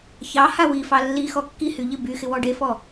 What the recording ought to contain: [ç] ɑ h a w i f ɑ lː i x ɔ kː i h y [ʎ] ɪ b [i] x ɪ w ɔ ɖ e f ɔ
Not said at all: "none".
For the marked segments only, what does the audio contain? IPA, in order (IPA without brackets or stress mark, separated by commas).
ç, ʎ, y